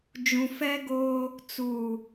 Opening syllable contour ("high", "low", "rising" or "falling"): low